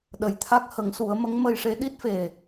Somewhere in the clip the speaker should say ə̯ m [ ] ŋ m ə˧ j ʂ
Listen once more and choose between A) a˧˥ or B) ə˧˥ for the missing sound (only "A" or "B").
B